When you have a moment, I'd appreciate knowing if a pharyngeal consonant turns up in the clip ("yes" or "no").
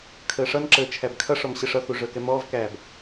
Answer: no